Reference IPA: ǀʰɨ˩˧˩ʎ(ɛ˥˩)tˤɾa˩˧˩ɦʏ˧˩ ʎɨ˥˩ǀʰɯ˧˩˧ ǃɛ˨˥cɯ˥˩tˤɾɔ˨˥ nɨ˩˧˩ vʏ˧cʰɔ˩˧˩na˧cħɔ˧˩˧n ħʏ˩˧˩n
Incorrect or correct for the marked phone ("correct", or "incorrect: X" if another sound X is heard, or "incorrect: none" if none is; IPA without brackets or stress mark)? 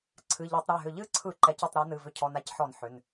incorrect: ɛ˧˩˧